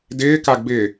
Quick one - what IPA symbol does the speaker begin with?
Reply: d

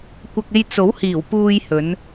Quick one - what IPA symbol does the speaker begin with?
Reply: kʷ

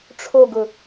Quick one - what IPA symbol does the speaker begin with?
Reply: ʈ͡ʂʰ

